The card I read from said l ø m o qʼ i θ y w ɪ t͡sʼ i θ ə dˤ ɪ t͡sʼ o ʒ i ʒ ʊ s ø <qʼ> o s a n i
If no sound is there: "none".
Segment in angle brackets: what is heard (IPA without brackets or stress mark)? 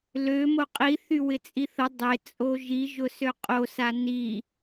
qʼ